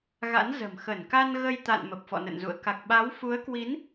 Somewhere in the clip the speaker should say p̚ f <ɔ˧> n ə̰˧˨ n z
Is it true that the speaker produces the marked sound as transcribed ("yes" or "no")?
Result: no